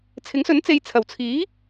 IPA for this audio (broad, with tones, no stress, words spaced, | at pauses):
t͡sʰɪ˨˥ŋsɵ˨˥nt͡se˨˧j t͡sʰɐ˨˩wt͡sʰiː˨˥